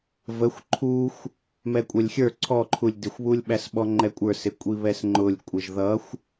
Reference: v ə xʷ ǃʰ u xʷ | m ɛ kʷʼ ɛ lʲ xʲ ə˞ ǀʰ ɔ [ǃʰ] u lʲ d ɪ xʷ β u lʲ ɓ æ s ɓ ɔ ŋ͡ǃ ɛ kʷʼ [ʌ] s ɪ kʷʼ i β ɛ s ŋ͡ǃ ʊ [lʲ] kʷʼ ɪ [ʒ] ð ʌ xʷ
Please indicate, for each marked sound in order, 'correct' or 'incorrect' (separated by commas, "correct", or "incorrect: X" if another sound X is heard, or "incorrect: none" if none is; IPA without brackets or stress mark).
correct, incorrect: ə˞, correct, correct